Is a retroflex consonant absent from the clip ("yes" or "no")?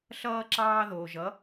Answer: yes